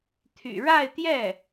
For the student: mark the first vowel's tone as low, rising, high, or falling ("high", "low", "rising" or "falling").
low